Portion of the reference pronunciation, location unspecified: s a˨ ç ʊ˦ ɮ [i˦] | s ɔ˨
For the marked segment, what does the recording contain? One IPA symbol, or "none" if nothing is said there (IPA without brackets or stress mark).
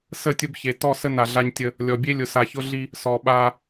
i˦